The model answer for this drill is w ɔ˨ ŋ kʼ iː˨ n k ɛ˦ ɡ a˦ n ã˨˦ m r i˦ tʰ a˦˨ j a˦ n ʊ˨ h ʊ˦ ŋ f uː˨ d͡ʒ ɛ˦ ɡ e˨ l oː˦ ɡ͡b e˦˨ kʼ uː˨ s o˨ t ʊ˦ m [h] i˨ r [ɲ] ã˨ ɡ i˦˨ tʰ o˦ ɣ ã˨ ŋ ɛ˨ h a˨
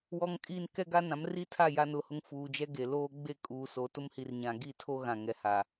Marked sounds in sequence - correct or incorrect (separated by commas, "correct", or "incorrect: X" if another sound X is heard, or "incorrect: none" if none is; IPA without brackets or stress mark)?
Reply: correct, correct